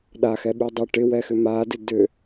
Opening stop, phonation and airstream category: implosive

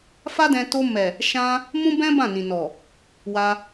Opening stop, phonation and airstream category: plain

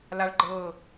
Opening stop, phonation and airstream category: click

